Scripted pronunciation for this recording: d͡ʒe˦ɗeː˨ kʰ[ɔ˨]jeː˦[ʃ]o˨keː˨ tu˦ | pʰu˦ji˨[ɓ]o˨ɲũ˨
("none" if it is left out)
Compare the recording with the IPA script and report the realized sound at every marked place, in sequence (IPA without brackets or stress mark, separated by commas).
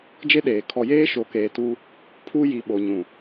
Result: ɔ˨, ʃ, ɓ